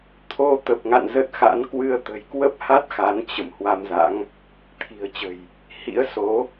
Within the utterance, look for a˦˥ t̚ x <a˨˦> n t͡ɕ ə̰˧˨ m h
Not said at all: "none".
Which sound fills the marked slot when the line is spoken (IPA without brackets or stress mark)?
a˨˦